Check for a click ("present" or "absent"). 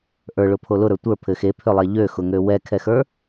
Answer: absent